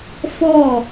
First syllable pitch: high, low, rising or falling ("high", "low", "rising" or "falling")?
falling